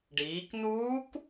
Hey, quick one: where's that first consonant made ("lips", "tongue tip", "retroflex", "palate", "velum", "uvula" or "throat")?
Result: retroflex